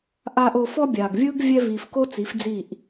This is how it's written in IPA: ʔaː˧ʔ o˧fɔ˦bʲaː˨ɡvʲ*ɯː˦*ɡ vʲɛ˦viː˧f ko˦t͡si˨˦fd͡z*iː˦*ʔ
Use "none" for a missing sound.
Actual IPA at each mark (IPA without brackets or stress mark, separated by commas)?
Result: ɯː˦, iː˦˨